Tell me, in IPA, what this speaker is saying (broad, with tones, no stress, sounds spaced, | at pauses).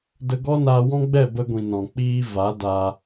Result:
d ə˧ ɡ ɔ˦ n aː˧ w ɔ̃˦ ɡ͡b ɛ˦˨ b ə˧ ɡʷ ĩ˨ n ɔ̃˨ k͡p iː˦ v a˨˦ d a˧